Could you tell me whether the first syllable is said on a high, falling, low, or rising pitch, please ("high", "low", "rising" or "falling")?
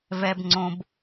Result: high